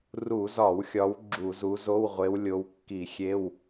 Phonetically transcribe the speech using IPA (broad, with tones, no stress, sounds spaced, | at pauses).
r u˧˩˧ z ɒ˧˩˧ w xʲ ɒ˨˦ w ɡ͡ǁ u˧˩˧ z u˨˦ z o˧˥˧ w ʁʷ e˨˦ w lʲ o˨˦ w kː i˧˩˧ xʲ e˧˥˧ w